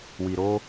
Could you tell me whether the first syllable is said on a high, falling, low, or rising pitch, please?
low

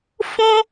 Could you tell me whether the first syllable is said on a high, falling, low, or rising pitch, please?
high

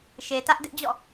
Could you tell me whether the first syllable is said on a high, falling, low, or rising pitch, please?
low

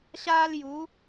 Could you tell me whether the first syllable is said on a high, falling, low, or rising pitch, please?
high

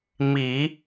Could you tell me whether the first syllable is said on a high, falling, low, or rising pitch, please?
low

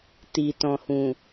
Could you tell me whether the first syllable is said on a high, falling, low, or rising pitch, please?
low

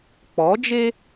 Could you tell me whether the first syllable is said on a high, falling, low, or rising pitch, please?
rising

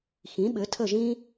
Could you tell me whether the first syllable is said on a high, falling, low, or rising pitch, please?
rising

